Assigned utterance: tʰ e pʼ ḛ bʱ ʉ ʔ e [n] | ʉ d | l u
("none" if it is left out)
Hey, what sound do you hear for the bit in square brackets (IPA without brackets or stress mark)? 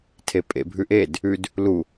d